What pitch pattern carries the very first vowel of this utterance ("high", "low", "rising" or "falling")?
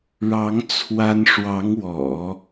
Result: rising